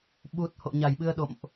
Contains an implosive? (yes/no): yes